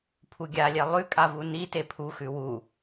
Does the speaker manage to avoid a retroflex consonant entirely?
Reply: yes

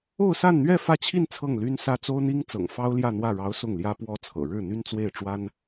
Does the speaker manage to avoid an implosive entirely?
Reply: yes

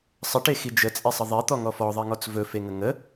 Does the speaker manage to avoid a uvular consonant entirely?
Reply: yes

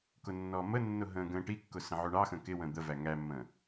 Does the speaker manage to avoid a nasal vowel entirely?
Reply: no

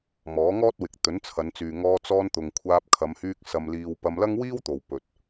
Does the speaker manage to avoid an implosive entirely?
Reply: yes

